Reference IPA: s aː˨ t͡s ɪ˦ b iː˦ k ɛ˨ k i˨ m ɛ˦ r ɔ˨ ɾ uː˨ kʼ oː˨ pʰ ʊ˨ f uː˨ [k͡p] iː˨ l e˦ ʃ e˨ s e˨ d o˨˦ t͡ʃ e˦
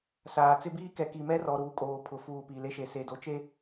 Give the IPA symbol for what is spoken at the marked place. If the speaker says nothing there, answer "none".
p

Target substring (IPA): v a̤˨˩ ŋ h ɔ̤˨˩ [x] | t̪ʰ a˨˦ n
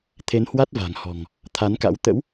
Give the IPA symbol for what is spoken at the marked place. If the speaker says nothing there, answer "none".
ŋ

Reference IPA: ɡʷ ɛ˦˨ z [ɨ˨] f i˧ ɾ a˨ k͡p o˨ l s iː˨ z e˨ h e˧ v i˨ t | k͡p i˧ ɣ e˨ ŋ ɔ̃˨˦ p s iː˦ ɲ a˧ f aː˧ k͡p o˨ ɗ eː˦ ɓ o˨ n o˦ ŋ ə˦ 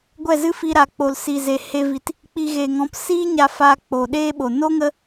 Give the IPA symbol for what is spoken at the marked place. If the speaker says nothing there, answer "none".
ɨ˦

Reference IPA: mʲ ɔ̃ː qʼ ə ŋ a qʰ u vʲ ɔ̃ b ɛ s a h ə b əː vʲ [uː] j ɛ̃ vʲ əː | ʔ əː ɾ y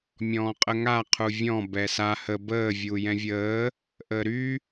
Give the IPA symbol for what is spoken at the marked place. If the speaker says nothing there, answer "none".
uː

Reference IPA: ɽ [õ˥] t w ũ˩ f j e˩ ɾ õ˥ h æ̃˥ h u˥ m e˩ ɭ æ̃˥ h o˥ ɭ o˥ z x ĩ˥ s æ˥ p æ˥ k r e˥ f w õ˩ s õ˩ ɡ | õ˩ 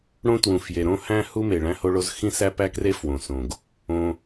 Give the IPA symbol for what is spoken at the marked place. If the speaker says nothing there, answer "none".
õ˥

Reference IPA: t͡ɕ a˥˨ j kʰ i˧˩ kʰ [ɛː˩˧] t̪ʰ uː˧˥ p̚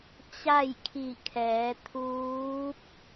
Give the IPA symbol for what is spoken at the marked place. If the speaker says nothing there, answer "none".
ɛː˩˧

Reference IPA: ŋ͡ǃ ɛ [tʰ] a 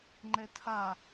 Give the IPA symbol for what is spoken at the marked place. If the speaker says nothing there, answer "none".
tʰ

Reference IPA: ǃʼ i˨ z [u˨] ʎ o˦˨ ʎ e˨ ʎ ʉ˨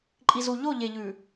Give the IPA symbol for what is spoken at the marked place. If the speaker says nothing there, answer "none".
u˨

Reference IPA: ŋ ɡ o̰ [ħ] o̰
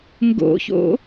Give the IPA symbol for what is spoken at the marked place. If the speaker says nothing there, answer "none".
ç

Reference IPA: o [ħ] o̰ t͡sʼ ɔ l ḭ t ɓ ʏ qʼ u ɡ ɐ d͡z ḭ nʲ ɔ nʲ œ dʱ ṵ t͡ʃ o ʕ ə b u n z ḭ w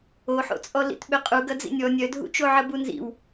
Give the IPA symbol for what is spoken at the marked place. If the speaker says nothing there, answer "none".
ħ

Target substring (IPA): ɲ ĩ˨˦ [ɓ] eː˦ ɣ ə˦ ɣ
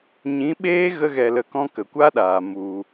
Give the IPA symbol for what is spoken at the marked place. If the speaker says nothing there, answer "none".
ɓ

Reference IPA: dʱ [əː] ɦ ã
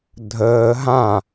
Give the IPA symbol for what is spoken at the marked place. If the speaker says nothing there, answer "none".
əː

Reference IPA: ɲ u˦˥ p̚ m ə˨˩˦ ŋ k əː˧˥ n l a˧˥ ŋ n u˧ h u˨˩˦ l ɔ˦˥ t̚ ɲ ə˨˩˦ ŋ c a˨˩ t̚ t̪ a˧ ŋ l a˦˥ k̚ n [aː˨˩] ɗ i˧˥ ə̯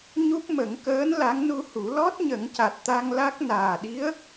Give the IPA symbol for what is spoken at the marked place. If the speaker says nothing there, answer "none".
aː˨˩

